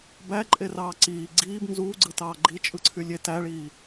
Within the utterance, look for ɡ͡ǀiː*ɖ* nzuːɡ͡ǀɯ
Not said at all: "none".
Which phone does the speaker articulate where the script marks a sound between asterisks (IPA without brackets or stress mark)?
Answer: b